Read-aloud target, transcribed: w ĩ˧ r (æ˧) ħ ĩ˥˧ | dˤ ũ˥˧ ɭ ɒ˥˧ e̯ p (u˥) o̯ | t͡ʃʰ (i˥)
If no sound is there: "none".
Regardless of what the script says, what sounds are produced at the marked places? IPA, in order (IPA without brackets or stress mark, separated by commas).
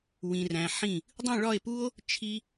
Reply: æ̃˧, u˥, i˥